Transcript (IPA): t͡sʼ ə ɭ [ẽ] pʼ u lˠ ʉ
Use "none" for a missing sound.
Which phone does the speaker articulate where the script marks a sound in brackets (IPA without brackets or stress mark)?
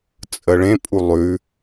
ẽ